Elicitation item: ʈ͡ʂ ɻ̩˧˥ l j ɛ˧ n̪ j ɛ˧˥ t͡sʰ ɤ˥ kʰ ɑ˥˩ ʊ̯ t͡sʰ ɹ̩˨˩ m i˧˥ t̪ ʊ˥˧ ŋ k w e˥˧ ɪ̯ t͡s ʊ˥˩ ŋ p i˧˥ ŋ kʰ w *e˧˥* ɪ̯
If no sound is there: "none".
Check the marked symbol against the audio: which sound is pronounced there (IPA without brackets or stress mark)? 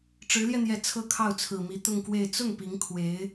e˧˥